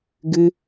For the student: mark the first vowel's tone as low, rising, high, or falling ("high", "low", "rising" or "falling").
high